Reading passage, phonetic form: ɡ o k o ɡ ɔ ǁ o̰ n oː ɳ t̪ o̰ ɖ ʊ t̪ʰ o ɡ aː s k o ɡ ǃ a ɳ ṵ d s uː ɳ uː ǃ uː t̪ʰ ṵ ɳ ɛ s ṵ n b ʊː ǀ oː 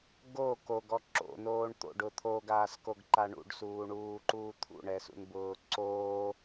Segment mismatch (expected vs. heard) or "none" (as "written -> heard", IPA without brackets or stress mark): d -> ɖ